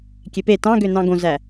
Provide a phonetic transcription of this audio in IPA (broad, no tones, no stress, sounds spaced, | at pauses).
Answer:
kʲ e p e t ɑ̃ ɡ ø n ɑ̃ ɡ õ z æ